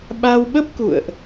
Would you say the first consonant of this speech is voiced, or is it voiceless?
voiced